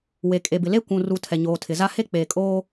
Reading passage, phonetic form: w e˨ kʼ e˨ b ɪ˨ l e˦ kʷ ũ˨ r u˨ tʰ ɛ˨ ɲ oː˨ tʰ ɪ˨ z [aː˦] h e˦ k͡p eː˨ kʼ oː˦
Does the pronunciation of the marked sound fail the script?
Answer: yes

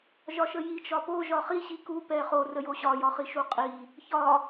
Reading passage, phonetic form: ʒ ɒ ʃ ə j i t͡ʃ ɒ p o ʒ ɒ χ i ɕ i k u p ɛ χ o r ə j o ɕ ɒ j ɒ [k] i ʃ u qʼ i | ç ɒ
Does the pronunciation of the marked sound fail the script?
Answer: yes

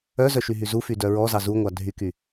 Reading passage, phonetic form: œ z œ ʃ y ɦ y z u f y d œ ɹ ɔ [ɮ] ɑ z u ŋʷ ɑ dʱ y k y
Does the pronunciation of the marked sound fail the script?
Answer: yes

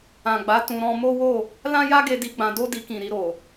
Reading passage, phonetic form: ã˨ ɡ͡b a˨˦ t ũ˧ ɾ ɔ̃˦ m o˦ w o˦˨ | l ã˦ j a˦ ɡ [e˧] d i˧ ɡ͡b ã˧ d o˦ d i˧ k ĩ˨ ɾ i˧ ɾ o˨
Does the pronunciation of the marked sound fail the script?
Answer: no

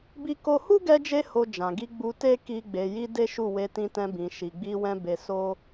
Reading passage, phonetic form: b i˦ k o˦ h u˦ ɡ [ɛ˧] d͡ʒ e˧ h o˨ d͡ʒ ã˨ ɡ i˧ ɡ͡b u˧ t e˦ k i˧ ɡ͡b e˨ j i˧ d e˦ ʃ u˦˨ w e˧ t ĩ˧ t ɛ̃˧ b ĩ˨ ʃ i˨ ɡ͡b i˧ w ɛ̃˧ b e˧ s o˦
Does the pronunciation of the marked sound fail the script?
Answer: no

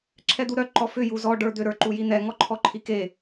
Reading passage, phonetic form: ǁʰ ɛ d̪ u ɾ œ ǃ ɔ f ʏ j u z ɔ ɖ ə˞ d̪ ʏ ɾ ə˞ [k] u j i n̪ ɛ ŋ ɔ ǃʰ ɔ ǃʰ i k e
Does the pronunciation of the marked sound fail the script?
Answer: yes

